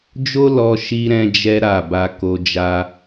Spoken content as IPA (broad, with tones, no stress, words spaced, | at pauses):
d͡ʒo˦lɔ˧ ʃi˧ ɾɛ̃˦d͡ʒɛ˦ ɾa˦˨ ba˧ko˧ d͡ʒa˦